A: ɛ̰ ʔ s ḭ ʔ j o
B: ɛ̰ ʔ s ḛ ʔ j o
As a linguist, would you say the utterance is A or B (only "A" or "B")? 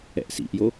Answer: A